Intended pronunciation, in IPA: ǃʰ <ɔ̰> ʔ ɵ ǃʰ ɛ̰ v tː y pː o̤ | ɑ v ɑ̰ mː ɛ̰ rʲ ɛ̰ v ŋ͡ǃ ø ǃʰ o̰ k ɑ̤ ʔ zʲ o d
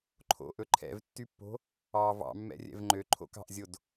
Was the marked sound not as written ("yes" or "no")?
yes